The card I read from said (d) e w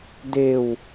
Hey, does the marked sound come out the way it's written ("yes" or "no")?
yes